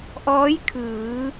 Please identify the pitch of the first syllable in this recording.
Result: rising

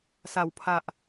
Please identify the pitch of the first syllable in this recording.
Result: low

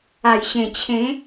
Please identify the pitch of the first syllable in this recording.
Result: low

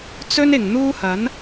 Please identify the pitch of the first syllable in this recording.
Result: high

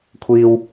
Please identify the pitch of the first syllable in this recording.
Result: high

